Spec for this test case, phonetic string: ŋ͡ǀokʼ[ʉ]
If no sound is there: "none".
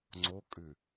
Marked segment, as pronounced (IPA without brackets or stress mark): ʉ